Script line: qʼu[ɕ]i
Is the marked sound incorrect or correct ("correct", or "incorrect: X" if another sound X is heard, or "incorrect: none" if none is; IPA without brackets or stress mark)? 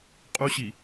correct